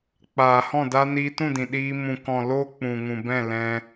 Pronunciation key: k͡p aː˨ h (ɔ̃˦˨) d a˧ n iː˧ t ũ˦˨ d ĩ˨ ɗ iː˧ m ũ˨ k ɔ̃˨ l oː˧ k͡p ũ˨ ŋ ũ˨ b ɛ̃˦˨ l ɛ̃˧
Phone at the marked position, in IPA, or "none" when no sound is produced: ɔ̃˦˨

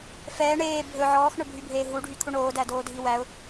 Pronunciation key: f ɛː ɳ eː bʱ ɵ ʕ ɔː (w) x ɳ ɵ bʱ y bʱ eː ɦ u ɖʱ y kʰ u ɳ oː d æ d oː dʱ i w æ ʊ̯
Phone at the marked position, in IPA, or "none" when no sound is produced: none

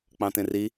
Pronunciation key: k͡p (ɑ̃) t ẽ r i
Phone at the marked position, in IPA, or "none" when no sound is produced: ɑ̃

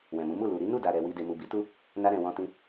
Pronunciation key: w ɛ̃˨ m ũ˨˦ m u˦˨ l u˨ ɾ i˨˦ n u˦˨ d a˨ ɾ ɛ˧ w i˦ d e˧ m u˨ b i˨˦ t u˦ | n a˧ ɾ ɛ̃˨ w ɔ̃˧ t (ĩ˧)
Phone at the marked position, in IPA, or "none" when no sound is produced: ĩ˧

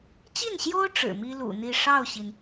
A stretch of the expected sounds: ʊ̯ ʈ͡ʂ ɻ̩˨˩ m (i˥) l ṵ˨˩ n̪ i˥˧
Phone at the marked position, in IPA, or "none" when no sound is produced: i˥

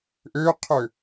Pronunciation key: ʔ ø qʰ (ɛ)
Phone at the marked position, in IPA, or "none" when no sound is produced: ø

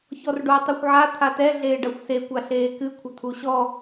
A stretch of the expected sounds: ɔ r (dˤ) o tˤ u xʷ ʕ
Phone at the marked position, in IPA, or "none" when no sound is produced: ɖ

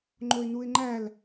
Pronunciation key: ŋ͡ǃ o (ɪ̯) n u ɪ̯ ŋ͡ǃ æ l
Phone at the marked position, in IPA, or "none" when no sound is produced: ɪ̯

